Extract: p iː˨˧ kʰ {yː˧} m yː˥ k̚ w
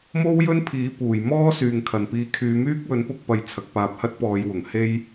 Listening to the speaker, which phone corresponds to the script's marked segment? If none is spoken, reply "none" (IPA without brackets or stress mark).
yː˨˧